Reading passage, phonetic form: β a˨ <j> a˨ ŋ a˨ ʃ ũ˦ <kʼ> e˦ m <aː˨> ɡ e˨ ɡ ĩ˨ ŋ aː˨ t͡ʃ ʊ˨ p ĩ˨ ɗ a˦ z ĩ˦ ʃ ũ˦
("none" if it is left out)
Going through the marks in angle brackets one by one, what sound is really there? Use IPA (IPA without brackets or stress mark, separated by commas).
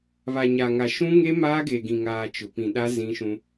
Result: ɲ, ŋ, aː˦